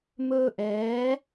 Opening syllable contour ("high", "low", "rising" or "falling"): high